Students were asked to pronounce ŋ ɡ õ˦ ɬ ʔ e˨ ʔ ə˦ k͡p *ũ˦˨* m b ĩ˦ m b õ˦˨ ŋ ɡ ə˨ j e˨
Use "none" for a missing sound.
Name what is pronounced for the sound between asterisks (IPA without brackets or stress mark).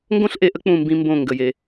ũ˦˨